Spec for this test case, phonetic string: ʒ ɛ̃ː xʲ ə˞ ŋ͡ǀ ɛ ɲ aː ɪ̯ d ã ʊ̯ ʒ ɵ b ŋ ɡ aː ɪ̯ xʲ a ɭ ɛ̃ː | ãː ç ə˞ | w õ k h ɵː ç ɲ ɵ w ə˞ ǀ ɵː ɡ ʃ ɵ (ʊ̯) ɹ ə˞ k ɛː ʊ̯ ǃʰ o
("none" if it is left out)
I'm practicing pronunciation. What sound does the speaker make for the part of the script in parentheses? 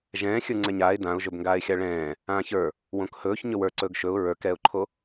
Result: ʊ̯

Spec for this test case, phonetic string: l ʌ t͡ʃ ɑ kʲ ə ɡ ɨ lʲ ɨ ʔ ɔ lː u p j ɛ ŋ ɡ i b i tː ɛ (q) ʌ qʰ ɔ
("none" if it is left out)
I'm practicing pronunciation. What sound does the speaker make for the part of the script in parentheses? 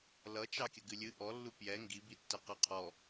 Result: q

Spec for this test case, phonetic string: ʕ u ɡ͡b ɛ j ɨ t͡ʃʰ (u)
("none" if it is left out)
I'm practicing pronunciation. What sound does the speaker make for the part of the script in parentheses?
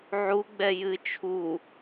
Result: u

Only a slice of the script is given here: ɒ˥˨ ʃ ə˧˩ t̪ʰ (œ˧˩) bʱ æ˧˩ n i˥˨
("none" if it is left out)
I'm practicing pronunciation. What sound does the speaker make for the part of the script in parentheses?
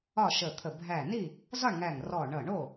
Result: ə˧˩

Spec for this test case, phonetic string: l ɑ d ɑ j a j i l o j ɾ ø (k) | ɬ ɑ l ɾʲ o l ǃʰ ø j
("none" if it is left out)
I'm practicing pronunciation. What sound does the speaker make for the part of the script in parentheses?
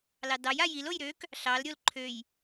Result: k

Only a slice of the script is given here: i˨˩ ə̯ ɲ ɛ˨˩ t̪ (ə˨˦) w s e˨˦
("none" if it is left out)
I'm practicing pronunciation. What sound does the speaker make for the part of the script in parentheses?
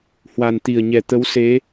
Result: ə˨˦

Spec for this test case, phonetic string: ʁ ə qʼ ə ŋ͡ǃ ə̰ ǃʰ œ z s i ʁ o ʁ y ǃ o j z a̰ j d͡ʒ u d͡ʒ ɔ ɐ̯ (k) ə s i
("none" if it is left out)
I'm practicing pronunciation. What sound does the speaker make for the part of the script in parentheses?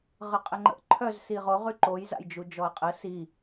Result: qʼ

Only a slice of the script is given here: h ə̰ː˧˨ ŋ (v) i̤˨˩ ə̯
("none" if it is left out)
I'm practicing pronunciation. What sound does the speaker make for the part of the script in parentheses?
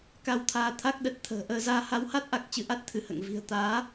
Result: v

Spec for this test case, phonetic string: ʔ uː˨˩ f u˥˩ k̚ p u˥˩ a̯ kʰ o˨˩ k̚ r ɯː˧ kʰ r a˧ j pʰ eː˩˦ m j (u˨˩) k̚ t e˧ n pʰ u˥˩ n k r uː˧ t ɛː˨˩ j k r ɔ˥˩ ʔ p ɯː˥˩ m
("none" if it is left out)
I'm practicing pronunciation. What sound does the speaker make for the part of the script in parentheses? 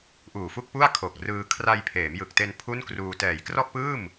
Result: ɯ˨˩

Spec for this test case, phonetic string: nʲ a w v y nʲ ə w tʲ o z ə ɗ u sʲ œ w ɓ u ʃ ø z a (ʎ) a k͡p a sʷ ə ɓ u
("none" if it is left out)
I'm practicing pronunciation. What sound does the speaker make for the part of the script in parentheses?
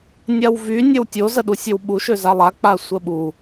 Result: lˠ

